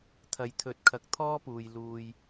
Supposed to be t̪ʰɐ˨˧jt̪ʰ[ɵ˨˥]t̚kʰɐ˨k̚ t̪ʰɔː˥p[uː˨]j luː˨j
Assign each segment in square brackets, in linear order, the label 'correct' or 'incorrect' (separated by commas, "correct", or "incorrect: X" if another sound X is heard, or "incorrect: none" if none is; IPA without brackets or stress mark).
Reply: correct, correct